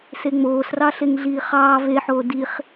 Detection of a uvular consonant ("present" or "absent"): present